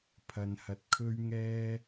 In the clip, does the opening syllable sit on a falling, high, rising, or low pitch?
low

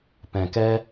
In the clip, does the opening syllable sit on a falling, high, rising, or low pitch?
low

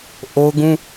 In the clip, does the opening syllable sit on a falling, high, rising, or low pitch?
high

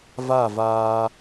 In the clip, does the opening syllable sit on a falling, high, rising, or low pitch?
falling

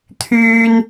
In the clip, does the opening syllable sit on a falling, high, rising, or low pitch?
high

